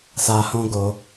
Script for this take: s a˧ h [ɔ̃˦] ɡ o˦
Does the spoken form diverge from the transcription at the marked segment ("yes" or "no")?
no